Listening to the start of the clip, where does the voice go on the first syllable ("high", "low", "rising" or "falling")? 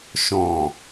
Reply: low